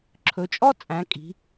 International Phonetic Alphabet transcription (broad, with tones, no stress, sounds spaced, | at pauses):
ǁʰ ɵ˩˧ t͡ʃʼ ɔ˥ t͡sʼ æ̃˩˧ kʼ i̤˩˧